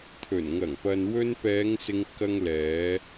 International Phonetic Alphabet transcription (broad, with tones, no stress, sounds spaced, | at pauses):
t̪ʰ ɵ˨˩ n ŋ ɐ˨˩ ŋ p ɐ˨ n w ɵ˧ n p ɛː˨˧ ŋ s ɪ˧ ŋ k ɐ˧ ŋ l ɛː˨˧